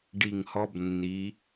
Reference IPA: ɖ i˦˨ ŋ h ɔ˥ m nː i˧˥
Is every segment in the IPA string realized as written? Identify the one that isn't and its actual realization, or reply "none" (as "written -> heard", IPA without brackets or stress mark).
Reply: m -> b